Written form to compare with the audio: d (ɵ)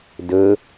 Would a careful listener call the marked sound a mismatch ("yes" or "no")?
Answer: no